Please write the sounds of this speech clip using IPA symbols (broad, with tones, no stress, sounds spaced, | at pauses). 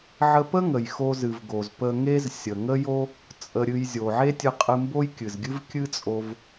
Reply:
ʕ ə˧ p ə˥ ŋ ə˩ j x o˧ z ɨ˩ v ɡ o˩ z p ə˧ ŋ e˥ z sʲ ə˩ ŋ ə˥ j o˥ | t͡sʼ ə˧ ɾʲ ɨ˧ j zʲ o˩ ʕ e˥ tʲ ɨ˧ qʼ ɨ˧ m b o˥ j kʲ ɨ˩ z ɡʲ ɨ˥ v kʲ ɨ˥ t͡sʼ o˧ v